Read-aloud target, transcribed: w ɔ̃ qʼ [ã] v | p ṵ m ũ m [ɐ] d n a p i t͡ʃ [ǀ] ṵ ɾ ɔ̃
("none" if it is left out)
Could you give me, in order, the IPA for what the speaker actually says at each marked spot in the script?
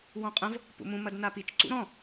ɐ̃, ɐ, ǀ

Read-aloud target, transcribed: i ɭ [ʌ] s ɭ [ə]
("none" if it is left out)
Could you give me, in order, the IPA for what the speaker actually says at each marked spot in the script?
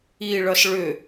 ʌ, ʏ

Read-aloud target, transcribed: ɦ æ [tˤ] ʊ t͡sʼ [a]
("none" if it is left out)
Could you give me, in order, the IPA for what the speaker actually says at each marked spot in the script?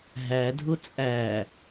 dʱ, æ

